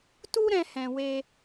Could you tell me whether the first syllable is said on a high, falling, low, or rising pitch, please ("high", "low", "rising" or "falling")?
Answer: high